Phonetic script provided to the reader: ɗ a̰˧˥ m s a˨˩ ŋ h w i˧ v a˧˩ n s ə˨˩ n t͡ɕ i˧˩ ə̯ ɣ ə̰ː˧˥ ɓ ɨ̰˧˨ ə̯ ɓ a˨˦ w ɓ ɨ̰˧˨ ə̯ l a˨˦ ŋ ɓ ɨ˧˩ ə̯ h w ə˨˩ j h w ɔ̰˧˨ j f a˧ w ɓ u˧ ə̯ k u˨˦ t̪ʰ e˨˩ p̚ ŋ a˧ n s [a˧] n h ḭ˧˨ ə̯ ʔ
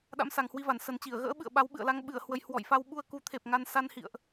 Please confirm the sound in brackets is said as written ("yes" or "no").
yes